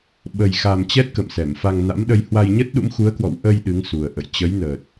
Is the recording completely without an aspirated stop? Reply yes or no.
yes